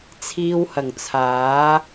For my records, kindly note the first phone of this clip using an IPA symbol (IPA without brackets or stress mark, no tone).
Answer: t͡sʰ